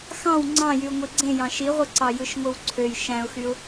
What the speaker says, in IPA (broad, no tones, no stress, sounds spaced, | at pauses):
x ɑ̃ w ŋ͡ǀ ɑ̃ j y ʊ̯ ŋʷ i ɡ͡ǀ ẽ j ɑ̃ ʃ i ʁʷ ɯ ǀ ɑ j ɯ ʃ ŋʷ ɯ w ǀʰ ø j ʃ æ̃ ʊ̯ x y ʊ̯